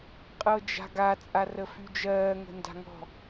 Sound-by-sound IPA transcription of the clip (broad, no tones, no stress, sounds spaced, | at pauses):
qʼ ɤ d͡ʒ a̤ ɡ a t͡sʼ a r ə f y d͡ʒ ɜː ŋ ə̤ n d a̤ ŋ ɔ̤